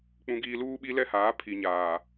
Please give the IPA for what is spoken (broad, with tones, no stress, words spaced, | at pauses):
k͡pũ˦ɡiː˦ luː˦ɓi˦lɛ˦haː˨˦ pʰi˨ɲaː˨